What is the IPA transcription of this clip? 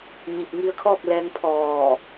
ɲ i˧˩ p̚ ŋ i˧ ə̯ kʰ ɔː˥˨ k̚ l ɛː˧ ŋ pʰ ɔː˧˩

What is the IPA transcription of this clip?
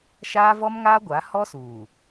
ʃ aː˦ v ɔ˦ m ŋ aː˦ ɡʷ a˨˦ h ɔ˦ s uː˨

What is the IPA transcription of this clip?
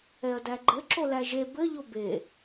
ɛ ɐ̯ d æ ɡ͡ǃ ɘ ǁ o l æ ʒ e b ɘ ʎ o b e

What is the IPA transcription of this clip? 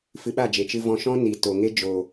f ɨ˧ ɓ a˦˨ d͡ʒ e˨ t͡ʃ ɨ˧ v ɔ̃˧ ʃ ɔ̃˦ n i˨ t o˨ ŋ e˦ d͡ʒ o˨

